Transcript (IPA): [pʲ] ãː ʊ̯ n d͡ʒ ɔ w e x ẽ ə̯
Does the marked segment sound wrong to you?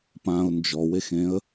yes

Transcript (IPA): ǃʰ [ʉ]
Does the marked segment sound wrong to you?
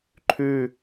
no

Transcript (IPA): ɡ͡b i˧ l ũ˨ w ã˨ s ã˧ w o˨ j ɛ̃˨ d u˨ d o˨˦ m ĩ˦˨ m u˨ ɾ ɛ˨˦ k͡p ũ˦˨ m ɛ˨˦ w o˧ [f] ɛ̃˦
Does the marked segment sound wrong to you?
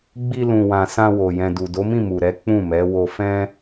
no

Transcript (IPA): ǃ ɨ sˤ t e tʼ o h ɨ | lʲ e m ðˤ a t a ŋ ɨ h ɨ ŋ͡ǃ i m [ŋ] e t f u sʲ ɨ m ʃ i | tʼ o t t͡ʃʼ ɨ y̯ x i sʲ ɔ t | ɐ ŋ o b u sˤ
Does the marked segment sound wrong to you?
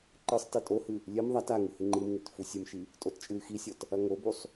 no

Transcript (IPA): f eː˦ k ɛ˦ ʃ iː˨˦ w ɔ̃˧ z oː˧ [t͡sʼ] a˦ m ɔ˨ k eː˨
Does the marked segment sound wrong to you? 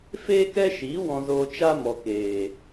yes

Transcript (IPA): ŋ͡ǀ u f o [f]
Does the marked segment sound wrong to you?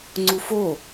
yes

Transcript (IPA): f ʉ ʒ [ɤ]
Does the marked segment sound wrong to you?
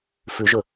yes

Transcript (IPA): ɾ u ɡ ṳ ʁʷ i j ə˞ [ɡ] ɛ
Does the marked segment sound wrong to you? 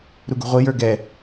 no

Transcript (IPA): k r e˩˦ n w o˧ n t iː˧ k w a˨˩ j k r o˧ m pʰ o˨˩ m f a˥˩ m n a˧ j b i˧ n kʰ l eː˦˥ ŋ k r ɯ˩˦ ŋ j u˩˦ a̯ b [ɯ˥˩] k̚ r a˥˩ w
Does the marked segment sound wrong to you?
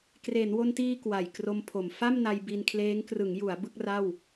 no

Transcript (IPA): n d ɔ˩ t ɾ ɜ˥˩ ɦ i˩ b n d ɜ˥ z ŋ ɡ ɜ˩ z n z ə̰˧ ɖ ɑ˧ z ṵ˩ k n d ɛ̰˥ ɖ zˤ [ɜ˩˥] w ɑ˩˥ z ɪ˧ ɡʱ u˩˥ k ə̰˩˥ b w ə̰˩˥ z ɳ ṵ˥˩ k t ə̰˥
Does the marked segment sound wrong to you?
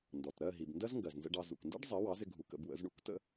no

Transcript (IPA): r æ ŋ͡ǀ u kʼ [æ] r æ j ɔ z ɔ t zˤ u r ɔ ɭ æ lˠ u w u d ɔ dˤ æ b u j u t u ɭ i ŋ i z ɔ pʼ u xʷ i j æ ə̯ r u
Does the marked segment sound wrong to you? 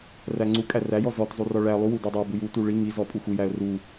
no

